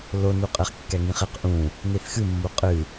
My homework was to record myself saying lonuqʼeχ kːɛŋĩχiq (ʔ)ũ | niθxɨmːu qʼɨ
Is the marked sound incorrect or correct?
correct